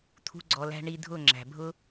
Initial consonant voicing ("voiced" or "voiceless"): voiceless